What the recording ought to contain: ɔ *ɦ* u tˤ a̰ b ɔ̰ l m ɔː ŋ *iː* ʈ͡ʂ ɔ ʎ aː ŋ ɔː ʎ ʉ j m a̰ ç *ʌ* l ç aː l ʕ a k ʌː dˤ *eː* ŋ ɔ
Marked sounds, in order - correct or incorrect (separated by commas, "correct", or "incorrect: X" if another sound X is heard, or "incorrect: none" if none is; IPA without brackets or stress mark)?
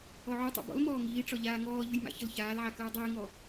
incorrect: ʕ, correct, correct, correct